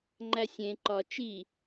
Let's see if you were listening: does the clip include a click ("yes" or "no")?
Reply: yes